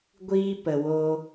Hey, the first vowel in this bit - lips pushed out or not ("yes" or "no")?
no